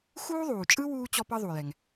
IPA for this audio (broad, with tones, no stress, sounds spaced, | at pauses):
x uː˥ ðˤ uː˩ t͡ʃʼ ɯ˥ w uː˥ t͡ɕ ɔ˥ p ɤ˥ ðˤ u˩ j ɛ˩ ŋ